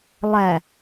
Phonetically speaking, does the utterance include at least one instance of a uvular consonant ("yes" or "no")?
no